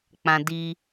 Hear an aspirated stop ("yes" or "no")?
no